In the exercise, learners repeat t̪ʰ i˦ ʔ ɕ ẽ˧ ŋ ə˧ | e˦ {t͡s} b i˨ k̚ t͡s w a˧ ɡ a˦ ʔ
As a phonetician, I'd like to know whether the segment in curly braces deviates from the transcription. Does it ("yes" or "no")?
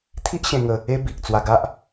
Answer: yes